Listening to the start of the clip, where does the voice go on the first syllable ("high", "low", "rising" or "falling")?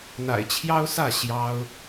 low